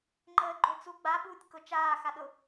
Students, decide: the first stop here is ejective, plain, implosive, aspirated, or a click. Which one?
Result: click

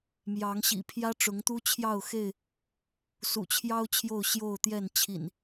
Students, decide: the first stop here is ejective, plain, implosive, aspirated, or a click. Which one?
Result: aspirated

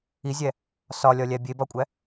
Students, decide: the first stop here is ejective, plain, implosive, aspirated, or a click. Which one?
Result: plain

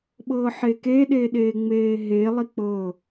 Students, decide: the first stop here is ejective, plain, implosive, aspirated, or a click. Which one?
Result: implosive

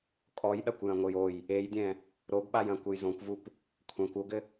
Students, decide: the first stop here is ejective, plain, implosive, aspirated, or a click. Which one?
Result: ejective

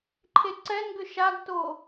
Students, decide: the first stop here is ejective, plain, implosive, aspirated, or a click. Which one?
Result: click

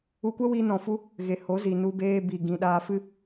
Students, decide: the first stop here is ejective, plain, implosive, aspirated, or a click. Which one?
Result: plain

